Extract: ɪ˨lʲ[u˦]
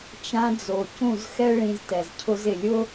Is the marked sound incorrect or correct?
incorrect